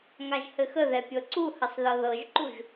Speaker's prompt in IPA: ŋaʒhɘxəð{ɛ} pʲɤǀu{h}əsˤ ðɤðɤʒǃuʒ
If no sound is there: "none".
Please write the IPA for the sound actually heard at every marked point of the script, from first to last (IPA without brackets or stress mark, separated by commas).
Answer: ɛ, h